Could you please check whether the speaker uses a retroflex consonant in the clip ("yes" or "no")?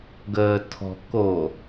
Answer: no